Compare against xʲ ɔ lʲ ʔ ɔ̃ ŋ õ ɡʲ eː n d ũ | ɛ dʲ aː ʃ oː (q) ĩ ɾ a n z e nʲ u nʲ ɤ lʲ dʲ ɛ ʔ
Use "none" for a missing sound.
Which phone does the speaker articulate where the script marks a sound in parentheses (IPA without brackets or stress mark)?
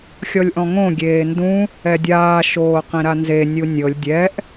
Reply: q